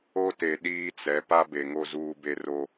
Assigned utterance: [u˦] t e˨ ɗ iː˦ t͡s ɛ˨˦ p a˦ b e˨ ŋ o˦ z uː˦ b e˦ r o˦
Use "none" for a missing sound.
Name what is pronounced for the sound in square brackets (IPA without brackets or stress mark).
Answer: o˦